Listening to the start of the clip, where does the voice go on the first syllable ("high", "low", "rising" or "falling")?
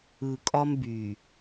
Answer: low